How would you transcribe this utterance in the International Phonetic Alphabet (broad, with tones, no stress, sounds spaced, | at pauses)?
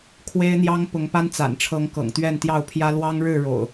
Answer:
kʰ w e˦ ɪ̯ n̪ j ɑ˦ ŋ p ʊ˨˦ ŋ p a˦ n t͡s a̰˨˩ n ʈ͡ʂʰ ɤ˨˦ ŋ k ɤ̰˨˩ ŋ t̪ ɥ ɛ˥˨ n t̪ j ɑ˥˨ ʊ̯ pʰ j ä˦ l w ɑ˦ ŋ ɻ ɻ̩˥˨ ɻ o̰˨˩ ʊ̯